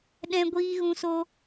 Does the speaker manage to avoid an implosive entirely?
no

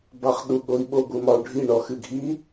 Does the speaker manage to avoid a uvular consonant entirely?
no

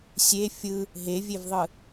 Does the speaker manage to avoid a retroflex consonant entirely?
yes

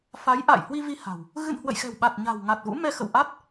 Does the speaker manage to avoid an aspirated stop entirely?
yes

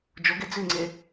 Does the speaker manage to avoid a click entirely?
no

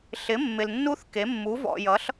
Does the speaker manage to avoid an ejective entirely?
yes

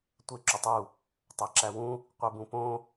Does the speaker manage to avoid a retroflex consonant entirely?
yes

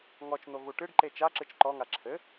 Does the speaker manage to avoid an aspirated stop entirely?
no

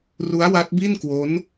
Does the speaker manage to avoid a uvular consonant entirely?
yes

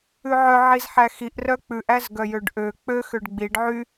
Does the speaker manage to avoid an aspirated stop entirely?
yes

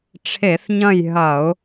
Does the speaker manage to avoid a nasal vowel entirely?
no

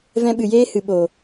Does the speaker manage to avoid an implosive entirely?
no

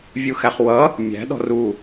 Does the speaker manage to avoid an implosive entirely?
no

